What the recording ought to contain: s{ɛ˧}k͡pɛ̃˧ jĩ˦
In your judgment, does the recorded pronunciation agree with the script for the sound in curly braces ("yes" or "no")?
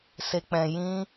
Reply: no